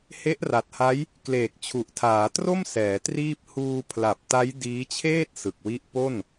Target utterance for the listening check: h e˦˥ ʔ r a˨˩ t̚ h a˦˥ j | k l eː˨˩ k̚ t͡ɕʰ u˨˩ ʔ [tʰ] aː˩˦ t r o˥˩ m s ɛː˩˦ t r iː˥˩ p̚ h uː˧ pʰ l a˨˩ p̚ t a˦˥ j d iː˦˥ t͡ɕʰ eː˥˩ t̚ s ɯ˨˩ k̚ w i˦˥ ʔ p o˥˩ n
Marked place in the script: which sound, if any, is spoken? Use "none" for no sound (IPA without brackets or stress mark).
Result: tʰ